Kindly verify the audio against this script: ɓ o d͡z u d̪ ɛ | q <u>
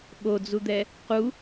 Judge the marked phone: correct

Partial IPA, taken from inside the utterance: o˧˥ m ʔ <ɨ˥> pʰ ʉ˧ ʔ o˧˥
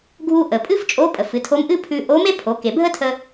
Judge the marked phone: correct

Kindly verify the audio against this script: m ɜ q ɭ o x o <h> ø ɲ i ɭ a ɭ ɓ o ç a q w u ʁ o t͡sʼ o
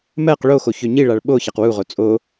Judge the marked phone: incorrect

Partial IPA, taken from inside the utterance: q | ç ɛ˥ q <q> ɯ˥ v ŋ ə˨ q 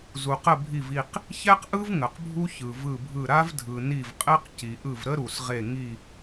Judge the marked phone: incorrect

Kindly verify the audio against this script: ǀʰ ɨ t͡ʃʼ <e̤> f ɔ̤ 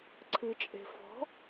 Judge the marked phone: correct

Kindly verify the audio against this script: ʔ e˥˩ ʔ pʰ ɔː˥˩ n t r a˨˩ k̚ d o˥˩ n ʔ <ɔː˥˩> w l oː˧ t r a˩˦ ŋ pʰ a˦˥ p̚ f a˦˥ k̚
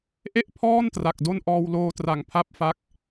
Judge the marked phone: incorrect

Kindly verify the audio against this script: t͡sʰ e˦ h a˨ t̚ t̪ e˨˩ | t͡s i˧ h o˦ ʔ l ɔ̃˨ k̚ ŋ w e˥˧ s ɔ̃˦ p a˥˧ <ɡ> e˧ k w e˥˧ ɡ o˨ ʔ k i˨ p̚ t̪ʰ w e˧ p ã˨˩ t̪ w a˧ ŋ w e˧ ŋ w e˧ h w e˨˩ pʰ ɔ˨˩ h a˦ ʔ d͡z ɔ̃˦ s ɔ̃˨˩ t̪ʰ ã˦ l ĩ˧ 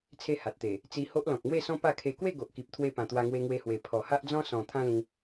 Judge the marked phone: incorrect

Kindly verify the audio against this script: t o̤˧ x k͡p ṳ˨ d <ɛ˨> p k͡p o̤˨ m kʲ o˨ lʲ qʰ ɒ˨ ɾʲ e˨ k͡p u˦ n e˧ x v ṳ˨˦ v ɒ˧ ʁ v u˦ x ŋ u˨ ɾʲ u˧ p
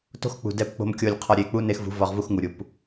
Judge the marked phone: correct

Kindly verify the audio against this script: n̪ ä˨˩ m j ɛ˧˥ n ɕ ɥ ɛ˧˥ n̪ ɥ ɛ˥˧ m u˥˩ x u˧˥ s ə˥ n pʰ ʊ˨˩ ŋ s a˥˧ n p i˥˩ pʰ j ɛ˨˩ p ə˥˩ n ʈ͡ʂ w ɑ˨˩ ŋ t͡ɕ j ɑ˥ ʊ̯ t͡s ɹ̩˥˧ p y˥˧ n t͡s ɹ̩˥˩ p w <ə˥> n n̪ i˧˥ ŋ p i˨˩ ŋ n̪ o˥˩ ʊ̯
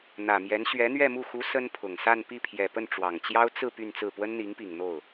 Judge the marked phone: correct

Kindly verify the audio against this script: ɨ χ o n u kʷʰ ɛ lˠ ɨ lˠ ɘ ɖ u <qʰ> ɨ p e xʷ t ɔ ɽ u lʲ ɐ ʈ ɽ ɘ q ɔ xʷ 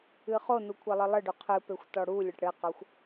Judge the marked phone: correct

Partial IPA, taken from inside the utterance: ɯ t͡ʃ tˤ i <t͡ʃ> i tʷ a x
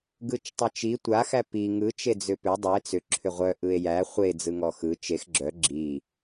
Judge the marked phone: correct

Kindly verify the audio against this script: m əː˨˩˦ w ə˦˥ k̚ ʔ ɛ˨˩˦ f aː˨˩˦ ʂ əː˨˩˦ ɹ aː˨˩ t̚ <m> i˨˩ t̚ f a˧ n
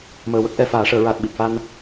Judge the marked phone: incorrect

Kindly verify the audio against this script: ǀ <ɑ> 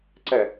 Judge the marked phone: incorrect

